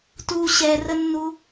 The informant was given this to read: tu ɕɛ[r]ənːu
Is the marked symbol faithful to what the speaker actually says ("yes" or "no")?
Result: yes